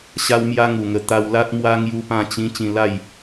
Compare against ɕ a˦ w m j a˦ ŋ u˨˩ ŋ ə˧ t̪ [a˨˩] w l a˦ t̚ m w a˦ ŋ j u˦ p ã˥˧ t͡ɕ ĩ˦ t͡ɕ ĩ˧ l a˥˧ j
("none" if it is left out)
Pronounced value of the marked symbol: a˧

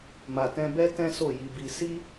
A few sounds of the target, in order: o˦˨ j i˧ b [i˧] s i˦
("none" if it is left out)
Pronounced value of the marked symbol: i˧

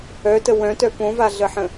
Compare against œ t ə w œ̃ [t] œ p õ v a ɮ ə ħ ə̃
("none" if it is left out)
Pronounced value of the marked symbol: t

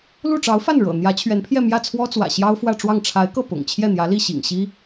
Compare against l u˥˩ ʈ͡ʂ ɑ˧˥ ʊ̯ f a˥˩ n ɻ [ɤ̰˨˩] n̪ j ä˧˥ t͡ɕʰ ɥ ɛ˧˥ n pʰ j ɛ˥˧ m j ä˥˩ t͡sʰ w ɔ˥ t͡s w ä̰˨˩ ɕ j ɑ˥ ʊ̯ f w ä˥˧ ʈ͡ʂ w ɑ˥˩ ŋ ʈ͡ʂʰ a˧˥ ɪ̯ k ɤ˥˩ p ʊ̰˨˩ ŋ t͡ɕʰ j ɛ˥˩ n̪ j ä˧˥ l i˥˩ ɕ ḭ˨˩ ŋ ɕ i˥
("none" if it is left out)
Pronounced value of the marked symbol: ɤ̰˨˩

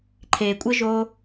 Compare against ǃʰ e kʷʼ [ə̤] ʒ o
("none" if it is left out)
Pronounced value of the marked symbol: ə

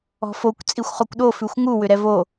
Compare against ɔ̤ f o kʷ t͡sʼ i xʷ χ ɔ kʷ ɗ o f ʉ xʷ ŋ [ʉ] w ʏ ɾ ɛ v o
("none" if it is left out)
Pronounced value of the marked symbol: u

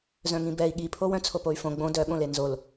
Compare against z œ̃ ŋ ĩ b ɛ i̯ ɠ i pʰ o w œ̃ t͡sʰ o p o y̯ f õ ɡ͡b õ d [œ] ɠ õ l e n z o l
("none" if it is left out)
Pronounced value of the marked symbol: œ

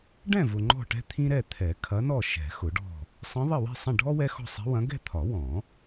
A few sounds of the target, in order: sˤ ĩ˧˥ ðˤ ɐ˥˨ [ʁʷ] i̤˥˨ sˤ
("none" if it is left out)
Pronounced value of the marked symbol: w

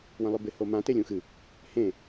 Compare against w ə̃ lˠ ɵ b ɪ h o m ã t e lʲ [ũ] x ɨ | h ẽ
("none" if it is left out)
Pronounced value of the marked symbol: ũ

